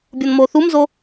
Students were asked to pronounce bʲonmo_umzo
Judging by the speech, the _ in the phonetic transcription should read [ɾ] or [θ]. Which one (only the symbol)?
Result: θ